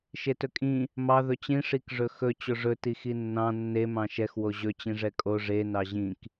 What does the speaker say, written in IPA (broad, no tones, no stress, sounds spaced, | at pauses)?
ʃ e t ɵ kʼ ĩ | m ɑ ð ɵ t͡ɕ ĩ ʂ i k ʐ ɵ x ɵ t͡ɕ o ʐ ɵ t i x i nː ɑ̃ nː e m ɑ̃ ʃ ɛ x w o ʑ ɵ t͡ɕ ĩ ʐ ɛ kʼ o ʐ e n ɑ ʑ ĩ k